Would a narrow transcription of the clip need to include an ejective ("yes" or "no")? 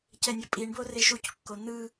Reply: yes